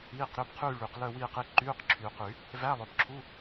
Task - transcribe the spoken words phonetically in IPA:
iː˧˥˧qɾø˧˥˧bqʰyː˥˧ ɭy˨˩˦q lœ˥˧wiː˥˧qi˧˥˧ ǃyː˧˥˧qǁʰyː˨qy˨˩˦ | væ˧˥˧lˠœ˨bǁʰu˧˥˧

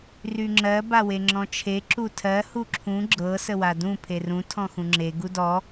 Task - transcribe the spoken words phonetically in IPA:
ryŋ͡ǁɜ baweŋ͡ǁɔ̃t͡ʃʰe ǁutʰɜ huǁʰũ ɡ͡ǁɤ səwadũ pʰerũ tʰɔ̃xũŋ͡ǁe ɡudɔ

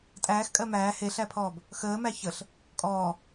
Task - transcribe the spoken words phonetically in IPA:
tʼæːxkʼɜ mæː heɬæpʰɔːb | xəːmæ çəɬ | kʼɔː

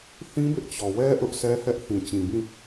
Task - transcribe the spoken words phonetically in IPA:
θĩ˦bɪ˦ʔt͡ɕɔ˨wɛ˦ ʔʊ˦ʔsɛ˦hɛ˦ʔ θĩ˨t͡ɕĩ˨bĩ˦˨

